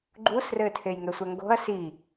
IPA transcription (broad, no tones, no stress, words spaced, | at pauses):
ɡ͡ǃusrɘː tʰejŋɛsʷɛŋɡo̤ɐ̯ si